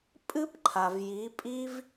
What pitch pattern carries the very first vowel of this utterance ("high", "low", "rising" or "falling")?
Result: high